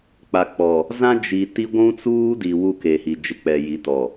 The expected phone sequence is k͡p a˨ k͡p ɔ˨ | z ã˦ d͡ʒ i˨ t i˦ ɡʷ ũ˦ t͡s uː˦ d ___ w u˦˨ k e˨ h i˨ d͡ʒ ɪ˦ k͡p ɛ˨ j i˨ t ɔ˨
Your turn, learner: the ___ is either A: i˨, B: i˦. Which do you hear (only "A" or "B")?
A